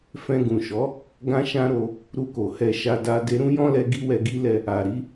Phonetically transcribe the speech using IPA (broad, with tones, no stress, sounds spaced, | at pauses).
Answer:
f ɛ̃˧ ɡ ũ˨ ʃ ɔ˨˦ | ɡ ã˦ ʃ ã˦ ɾ o˧ | ɾ u˧ k o˨ h ɛ˧ ʃ a˧ d a˧ d e˧ ɾ ũ˦ j ɔ̃˦ l ɛ˧ ɡ i˦ w ɛ˧ ɡ i˦ l ɛ˧ | a˨ ɾ i˨˦